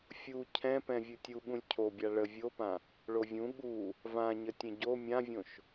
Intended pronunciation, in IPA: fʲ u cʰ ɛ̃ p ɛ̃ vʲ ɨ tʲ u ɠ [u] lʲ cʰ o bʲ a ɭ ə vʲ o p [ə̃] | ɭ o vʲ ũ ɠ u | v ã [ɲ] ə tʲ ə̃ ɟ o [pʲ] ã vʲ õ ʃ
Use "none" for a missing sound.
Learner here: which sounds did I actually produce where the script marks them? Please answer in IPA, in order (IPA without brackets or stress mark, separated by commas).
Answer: ũ, ã, ɲ, mʲ